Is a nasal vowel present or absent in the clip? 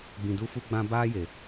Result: present